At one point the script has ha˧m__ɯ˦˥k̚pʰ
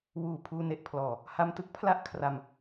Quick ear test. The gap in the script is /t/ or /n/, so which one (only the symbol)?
t